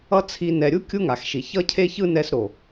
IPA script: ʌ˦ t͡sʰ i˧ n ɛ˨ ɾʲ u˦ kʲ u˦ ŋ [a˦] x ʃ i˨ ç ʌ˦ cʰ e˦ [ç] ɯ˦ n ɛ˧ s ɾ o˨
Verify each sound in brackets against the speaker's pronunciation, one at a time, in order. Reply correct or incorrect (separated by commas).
incorrect, correct